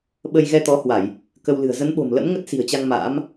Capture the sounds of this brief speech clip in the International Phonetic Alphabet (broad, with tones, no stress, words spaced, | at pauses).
ɓə˧j ɣɛ˧t̪ɔ˨˦hwa˧˩˨j | kə˧wlɨ̤˨˩ə̯ zə˨˦nɓo̤˨˩m lə̰˧˥mŋə˦˥t̚ si̤˨˩ə̯t͡ɕa˧ŋ ma̰ː˧˥m